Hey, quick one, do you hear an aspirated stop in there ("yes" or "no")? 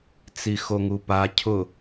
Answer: yes